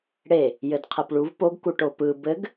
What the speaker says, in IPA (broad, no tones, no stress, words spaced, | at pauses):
ɽe | jɘdqʰepɭuv poɡ kuʈopɯ bɘɡ